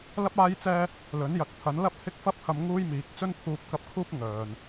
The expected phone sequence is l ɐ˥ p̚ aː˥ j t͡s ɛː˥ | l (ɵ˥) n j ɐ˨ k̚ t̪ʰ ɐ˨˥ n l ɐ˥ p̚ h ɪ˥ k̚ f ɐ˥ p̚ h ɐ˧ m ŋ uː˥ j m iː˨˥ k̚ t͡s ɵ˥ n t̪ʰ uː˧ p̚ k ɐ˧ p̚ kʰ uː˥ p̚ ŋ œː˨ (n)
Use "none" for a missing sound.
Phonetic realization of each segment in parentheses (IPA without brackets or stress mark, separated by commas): ɵ˨˥, n